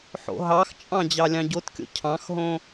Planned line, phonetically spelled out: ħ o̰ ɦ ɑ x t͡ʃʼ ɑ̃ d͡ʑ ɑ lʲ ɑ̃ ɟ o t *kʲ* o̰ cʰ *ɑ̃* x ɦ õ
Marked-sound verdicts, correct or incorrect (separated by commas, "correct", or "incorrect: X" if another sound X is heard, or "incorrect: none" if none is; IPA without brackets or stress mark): correct, correct